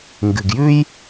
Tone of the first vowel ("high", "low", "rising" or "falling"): low